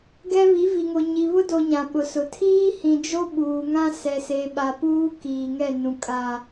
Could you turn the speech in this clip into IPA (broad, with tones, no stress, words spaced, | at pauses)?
ɡɛ˦ βi˨˦vi˨ŋo˨ ɲi˨βʊ˦do˨ ɲã˨ɓʊ˨sʊ˨ tʰiː˦hĩ˨d͡ʒo˦ ɓuː˨ŋã˦ sɛ˨se˨ɓa˨ puː˦ kiː˨ŋɛ˦˨ nũ˨ kʼa˨